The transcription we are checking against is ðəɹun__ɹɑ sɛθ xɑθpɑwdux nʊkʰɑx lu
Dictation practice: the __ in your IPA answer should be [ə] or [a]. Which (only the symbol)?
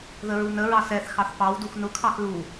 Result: ə